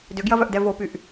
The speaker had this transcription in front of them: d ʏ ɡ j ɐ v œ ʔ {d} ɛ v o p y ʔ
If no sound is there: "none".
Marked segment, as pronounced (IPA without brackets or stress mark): d